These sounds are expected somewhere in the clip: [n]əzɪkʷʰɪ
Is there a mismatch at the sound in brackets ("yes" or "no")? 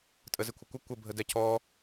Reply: yes